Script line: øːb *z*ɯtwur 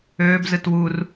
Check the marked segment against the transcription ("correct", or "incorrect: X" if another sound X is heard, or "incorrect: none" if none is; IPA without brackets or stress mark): correct